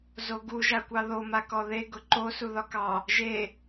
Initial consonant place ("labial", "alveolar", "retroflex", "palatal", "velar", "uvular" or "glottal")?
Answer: alveolar